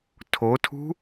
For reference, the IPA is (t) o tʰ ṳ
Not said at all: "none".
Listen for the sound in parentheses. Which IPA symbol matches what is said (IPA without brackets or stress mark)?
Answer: tʰ